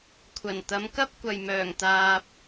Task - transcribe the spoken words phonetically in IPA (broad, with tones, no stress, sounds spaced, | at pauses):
kʷʰ ɐ˨˩ n t̪ ɐ˨˧ m k ɐ˥ p̚ kʷ ɐ˨ j m œː˨˩ ŋ t̪ aː˨ p̚